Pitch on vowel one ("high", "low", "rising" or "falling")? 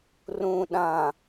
low